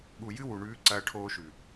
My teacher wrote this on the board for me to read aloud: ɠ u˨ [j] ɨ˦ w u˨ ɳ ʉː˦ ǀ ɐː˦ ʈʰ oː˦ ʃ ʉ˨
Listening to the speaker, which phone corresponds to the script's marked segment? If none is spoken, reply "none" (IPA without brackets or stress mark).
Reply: j